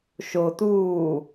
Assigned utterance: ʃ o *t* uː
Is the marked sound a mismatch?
no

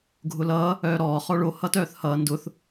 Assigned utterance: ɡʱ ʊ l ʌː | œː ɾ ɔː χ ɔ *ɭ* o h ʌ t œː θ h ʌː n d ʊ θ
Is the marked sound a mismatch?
no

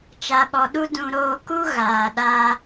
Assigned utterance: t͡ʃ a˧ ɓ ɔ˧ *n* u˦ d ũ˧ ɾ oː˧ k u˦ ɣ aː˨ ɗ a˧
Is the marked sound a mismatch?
yes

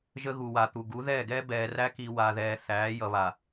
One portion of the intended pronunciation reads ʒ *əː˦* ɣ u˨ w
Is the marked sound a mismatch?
yes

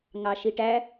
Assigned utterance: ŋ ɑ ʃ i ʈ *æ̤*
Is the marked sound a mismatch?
yes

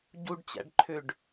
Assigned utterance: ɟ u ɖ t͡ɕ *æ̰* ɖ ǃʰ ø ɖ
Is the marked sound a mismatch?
no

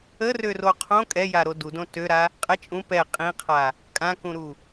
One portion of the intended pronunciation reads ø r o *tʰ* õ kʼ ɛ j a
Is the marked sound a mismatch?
yes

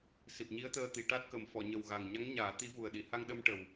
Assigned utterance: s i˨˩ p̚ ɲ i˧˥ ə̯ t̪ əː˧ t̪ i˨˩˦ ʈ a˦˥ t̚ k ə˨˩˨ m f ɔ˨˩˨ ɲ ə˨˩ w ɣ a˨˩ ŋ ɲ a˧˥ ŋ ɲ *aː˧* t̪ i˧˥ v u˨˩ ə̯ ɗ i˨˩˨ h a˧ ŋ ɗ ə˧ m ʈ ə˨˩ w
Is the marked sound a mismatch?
yes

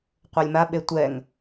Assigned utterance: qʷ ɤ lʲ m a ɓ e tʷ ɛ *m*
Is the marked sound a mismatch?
yes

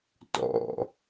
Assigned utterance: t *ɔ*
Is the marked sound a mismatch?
yes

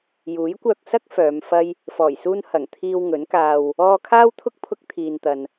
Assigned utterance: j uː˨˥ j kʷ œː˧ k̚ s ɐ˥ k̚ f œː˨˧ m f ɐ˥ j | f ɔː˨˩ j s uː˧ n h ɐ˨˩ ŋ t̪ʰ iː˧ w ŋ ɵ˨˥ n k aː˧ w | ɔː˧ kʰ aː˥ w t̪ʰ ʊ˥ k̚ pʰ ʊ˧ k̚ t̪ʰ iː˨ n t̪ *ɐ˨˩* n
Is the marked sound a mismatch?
yes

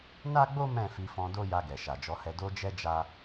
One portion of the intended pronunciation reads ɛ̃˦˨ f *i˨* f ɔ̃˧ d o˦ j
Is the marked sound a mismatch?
yes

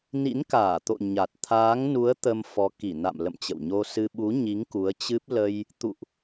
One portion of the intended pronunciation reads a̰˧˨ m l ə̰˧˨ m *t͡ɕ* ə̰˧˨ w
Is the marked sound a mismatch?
no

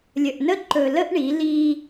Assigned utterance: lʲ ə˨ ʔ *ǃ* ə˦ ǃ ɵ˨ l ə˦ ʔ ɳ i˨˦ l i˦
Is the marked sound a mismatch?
yes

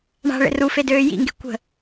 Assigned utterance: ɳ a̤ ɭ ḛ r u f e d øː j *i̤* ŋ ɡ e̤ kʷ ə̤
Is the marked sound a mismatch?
yes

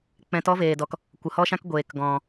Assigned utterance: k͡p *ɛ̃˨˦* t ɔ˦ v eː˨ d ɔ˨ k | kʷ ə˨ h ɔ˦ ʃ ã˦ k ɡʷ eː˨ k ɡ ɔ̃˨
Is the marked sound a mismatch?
no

